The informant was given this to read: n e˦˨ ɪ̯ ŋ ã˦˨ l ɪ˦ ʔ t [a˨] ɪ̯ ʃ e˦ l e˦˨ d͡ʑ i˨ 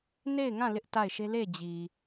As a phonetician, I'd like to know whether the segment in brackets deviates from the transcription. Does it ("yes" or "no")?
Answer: yes